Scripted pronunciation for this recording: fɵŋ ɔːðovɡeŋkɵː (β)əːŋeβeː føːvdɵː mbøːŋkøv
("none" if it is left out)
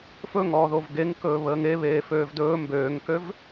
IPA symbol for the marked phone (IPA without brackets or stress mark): β